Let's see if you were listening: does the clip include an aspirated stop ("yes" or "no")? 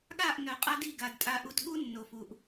no